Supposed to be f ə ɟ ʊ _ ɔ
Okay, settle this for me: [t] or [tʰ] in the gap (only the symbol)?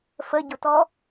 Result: t